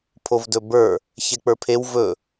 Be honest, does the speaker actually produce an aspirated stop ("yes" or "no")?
yes